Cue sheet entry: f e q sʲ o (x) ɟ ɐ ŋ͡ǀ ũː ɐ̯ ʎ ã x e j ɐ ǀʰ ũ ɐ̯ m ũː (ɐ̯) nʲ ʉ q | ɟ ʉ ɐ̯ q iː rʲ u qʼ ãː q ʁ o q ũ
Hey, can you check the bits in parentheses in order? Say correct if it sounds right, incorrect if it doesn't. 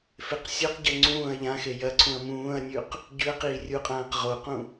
incorrect, correct

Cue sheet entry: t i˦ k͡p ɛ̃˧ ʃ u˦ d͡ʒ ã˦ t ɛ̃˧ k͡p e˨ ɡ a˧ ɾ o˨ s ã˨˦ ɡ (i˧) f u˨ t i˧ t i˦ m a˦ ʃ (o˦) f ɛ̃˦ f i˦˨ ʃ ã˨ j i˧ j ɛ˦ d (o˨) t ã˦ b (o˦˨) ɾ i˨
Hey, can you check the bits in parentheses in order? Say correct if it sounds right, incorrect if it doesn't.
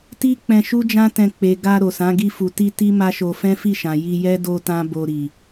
correct, incorrect, incorrect, incorrect

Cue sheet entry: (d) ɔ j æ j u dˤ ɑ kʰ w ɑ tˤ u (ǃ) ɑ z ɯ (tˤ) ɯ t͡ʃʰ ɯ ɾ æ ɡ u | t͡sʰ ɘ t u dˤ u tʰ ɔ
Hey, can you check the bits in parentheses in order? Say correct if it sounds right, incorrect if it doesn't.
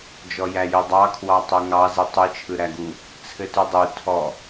incorrect, incorrect, correct

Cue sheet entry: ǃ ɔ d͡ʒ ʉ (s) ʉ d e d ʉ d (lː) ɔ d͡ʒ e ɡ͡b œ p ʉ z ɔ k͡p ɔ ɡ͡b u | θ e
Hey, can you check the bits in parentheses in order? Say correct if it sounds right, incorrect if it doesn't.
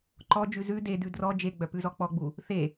incorrect, incorrect

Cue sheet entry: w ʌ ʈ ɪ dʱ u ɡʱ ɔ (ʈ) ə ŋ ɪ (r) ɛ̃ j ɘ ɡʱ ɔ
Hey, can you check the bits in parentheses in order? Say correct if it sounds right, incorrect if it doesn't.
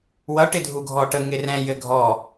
correct, correct

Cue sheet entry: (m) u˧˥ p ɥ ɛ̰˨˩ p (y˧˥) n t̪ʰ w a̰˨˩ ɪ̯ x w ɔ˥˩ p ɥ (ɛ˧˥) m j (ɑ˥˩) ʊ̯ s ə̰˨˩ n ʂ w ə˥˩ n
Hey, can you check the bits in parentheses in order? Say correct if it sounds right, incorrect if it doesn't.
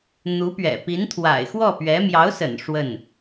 incorrect, incorrect, correct, incorrect

